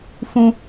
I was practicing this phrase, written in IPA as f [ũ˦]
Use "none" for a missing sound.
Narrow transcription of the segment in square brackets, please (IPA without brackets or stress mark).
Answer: ũ˦